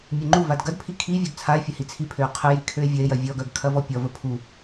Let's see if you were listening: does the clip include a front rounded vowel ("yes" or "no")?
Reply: yes